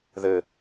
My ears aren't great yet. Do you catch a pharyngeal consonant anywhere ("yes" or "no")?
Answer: no